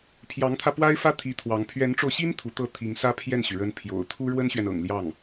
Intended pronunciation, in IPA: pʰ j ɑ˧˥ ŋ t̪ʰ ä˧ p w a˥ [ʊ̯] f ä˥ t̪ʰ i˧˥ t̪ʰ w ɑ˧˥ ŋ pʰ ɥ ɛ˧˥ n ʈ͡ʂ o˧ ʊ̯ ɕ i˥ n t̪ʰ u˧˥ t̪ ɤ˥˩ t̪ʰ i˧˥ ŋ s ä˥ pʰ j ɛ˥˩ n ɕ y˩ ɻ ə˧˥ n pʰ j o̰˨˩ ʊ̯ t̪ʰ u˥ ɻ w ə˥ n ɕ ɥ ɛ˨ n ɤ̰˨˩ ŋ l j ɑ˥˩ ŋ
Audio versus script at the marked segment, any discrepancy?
yes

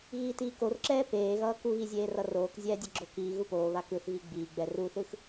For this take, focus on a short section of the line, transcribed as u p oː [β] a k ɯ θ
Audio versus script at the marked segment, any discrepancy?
no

